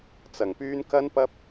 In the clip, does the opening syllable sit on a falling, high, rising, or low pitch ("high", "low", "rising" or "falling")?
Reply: low